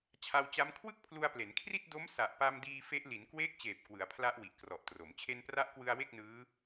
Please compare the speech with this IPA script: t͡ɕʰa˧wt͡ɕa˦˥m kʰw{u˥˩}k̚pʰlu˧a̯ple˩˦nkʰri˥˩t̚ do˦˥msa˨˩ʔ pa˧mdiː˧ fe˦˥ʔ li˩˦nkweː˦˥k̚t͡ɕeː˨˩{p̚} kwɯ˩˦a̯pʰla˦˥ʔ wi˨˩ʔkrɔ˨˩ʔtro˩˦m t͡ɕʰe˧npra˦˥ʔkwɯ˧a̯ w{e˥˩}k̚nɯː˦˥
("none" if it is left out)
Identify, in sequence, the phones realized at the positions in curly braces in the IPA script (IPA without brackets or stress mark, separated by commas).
ɯ˥˩, p̚, e˥˩